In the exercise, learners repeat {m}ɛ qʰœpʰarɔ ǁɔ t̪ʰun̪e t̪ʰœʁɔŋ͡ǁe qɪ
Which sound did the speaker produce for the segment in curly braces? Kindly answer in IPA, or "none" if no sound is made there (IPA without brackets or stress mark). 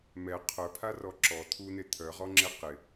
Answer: m